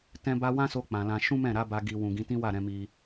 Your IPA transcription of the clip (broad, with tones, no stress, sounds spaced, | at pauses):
t ɛ̃˦ b a˦ w ã˦ s o˧ k͡p ã˨ l ã˧ ʃ ũ˦ m ɛ̃˦˨ ɾ a˨˦ b a˧ ɡ i˧ w ũ˨ ɡ ĩ˨˦ t ĩ˦ w a˦˨ ɾ ɛ̃˧ m i˧